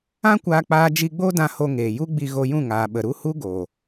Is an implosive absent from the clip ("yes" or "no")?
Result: no